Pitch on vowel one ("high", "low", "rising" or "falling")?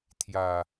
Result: low